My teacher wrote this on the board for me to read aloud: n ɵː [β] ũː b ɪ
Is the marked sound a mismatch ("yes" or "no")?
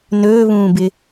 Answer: no